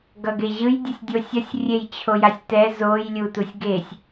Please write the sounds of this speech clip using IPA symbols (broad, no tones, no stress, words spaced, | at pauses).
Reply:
ɡʌɡeʑɯj dʲʌsʲdʲosʲʌsʲ rʲejt͡ɕʰojasʲtɛ zoj lʲutusʲɡesʲ